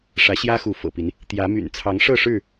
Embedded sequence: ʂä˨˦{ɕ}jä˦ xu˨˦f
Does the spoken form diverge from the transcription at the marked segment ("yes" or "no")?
no